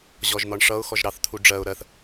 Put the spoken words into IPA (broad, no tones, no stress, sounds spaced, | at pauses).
ʑ ɔ ʒ n̪ ɒ ɳ ʂ ʌ ʊ̯ x ɔ ʒ ɾ ɑ θ t̪ʰ u ɖ͡ʐ ɜ ʊ̯ ɾ ɜ θ